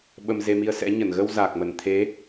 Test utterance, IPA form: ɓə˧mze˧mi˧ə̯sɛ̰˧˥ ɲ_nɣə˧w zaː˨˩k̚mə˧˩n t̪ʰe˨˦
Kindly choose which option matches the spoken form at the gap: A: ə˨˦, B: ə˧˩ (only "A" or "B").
B